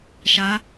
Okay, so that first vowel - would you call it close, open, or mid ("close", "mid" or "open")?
open